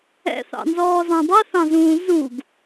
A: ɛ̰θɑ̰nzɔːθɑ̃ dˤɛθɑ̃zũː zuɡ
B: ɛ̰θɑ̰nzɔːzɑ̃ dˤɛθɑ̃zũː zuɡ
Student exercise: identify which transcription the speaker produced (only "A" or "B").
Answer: B